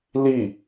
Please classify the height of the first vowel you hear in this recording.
high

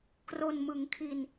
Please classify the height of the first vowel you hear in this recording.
mid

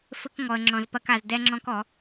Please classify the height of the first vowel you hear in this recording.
mid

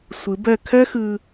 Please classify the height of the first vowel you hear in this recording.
high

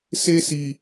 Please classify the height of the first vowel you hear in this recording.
mid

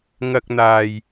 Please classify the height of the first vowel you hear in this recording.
low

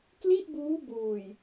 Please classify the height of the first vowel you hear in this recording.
high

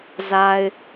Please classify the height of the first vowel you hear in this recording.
low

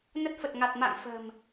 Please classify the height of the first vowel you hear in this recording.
mid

